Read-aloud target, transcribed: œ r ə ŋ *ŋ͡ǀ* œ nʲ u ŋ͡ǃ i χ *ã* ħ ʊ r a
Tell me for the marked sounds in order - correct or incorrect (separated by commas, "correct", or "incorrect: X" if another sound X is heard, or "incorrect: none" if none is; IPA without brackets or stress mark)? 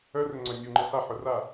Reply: correct, incorrect: a